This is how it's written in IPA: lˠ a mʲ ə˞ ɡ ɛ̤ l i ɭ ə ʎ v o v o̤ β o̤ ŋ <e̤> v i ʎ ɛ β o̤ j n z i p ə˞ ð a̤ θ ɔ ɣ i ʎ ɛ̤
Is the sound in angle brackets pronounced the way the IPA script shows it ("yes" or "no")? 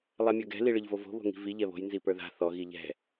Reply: no